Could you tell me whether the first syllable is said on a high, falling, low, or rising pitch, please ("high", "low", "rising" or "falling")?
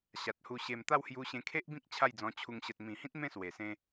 low